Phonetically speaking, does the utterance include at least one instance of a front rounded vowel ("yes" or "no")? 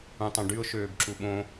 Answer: yes